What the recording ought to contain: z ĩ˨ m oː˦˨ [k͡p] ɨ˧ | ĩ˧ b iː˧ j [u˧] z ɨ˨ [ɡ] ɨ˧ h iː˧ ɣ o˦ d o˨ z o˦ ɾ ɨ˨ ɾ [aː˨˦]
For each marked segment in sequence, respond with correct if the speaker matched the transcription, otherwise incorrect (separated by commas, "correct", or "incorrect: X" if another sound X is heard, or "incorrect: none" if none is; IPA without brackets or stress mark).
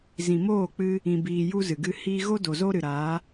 correct, correct, correct, correct